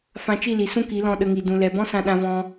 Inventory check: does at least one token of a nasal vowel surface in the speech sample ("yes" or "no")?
yes